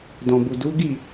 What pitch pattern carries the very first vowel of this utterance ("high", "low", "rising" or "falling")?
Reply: low